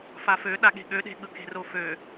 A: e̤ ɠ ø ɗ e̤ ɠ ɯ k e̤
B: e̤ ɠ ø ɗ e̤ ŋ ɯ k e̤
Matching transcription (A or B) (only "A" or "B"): A